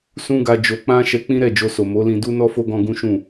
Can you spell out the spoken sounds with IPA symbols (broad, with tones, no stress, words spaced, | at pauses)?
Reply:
sũ˦ɡa˧ d͡ʒo˧k͡pã˦ ʃɛ˧k͡pĩ˦ɾɛ˦˨ d͡ʒo˧so˨ mo˨˦lĩ˧ du˦nɔ˦fo˦ ɡɔ̃˧ ɡũ˦ʃũ˦˨